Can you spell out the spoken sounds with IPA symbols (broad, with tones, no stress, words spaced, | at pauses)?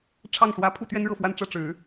ʈ͡ʂʰɑ˥˩ŋʂwä˧˥ pʰu˥˩t̪ɥɛ˥nɻɤ˥˧ fwa˥˧nʈ͡ʂɤ˥˩ ʈ͡ʂɻ̩˨˩˦